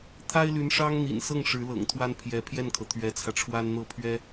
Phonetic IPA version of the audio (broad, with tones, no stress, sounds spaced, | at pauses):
t̪ʰ a˥ ɪ̯ l y˧˥ n ʂ ɑ˥ ŋ n̪ ḭ˨˩ n s ɤ˥˩ ŋ ʂ ɻ̩˧˥ l ɤ̰˨˩ ŋ t̪ʰ w a˥ n pʰ j ɛ˧˥ pʰ j ɛ˥˩ n kʰ ɤ˩ t̪ʰ ɥ ɛ˧˥ t͡sʰ ä˧ ʈ͡ʂʰ w a˥ n n̪ ɤ˥˩ pʰ ɥ ɛ˥